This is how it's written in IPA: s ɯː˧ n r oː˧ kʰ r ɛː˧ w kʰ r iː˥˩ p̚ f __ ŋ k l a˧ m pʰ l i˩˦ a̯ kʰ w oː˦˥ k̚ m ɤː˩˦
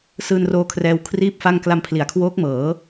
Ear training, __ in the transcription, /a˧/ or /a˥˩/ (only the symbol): a˥˩